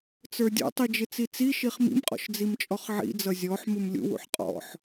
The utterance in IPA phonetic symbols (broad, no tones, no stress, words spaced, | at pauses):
t͡sə˞dʲɔ̰tˤi d͡ʒɪt͡sit͡siʃiχ mḭmqʼɔ̰ʃ d͡zimt͡ʃʼɔχʕḭd͡zʌ zʲɔħ mumlʲṵwṵħ qʼɔ̰ħ